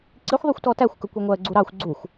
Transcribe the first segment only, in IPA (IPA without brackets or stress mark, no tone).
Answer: ǀ